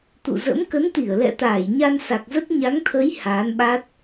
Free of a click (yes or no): yes